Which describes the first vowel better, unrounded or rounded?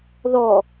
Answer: rounded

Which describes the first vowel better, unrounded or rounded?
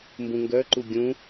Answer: rounded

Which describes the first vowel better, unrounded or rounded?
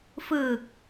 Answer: unrounded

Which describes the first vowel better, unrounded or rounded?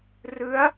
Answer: unrounded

